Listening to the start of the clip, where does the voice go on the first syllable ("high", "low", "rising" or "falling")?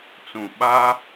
low